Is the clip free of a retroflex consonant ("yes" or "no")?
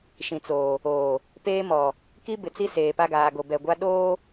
yes